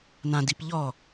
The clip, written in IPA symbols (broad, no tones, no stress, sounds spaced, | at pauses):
n ã d i p ʎ ɔ